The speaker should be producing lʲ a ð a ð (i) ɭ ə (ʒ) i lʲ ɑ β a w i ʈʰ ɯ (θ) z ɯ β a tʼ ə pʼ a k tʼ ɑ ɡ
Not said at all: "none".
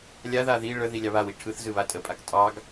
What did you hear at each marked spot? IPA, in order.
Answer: i, ð, θ

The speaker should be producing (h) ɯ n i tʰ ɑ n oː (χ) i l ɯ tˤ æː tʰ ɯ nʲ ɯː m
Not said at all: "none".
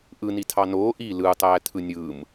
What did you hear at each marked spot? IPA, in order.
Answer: ʔ, ʔ

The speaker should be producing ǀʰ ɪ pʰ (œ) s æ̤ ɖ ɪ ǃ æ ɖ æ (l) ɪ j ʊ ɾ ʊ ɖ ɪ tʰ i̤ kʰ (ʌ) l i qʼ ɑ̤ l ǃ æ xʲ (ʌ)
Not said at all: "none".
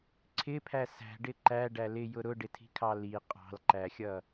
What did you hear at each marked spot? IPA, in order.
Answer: æ, l, ɑ, ʌ

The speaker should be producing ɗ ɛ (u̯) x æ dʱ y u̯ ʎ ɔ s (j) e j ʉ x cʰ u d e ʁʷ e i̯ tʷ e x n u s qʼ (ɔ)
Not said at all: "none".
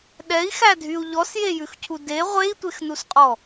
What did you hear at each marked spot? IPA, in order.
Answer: i̯, j, ɔ

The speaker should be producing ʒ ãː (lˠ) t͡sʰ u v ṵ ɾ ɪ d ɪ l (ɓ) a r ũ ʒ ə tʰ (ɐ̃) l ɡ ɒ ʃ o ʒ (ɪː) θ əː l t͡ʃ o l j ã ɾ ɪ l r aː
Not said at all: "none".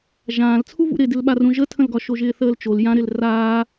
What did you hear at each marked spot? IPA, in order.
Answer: l, ɓ, ə̃, ɪː

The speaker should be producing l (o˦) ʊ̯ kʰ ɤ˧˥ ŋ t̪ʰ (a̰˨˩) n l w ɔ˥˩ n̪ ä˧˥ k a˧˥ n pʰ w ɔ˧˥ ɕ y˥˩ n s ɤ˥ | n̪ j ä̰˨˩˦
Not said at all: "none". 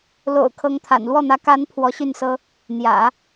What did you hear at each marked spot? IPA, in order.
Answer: o̰˨˩, a̰˨˩

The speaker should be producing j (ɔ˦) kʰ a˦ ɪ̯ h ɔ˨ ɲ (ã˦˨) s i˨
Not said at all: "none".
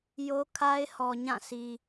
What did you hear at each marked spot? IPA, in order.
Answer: o˦, ã˦˨

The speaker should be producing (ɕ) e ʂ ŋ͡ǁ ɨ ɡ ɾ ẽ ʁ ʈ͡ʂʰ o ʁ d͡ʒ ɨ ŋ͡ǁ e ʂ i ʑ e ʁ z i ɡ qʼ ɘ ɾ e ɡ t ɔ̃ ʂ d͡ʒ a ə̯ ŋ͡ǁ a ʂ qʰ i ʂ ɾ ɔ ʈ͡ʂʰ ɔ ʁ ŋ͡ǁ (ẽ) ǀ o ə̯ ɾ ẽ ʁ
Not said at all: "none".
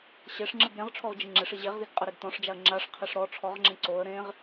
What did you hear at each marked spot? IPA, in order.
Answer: ɕ, ẽ

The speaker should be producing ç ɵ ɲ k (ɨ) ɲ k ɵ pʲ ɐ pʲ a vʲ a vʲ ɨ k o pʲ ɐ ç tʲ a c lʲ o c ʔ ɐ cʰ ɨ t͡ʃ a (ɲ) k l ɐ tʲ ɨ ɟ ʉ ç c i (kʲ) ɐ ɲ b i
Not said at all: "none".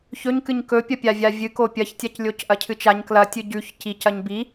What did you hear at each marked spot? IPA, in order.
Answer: ɨ, ɲ, c

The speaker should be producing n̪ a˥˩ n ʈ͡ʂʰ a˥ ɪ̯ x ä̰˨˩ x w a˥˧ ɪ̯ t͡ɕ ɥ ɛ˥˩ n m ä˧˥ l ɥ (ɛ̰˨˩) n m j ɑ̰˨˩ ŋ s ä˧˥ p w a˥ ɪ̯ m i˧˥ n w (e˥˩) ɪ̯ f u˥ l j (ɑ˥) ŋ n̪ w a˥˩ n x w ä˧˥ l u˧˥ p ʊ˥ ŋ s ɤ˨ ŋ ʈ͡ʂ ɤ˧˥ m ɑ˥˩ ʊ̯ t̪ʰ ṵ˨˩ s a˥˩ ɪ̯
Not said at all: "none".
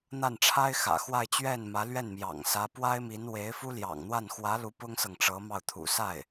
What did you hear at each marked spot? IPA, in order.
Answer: ɛ˥˩, e˧˥, ɑ̰˨˩

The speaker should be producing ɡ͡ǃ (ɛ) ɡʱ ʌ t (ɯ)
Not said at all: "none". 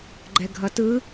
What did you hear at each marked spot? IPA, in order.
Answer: ɛ, ɯ

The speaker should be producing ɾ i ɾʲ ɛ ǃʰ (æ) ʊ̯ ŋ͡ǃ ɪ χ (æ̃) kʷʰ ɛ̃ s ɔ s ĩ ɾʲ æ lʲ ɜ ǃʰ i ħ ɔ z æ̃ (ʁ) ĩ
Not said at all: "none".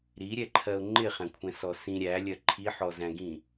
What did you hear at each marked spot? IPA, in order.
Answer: ɜ, æ̃, ɡ

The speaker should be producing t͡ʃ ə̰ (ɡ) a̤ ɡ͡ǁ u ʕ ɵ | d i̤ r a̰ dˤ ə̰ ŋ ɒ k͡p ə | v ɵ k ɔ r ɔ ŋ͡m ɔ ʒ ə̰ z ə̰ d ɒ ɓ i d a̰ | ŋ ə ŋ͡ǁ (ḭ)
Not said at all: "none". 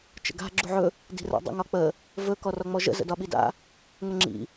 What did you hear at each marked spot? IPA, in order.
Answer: ɡ, ḭ

